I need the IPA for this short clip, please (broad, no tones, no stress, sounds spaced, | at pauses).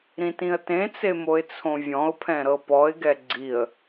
ɾ ĩ t ĩ ə̯ t ẽ t͡s e m o ɪ̯ t͡sʰ õ vʲ ɔ̃ ʊ̯ pʰ ɛ̃ ɾ ɤ p ɔ ɪ̯ ɡ ɛ ɡ͡ǀ i ə̯